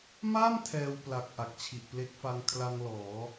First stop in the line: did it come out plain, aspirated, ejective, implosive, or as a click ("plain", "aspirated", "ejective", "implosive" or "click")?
aspirated